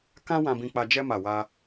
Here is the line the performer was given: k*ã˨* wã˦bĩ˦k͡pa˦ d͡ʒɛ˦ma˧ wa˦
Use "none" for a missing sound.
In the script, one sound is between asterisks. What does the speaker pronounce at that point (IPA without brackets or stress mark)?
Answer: ã˦